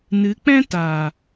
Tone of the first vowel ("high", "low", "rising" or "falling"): rising